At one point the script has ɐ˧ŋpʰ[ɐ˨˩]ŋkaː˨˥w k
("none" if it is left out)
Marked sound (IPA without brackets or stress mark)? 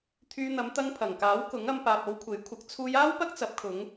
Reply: ɐ˨˩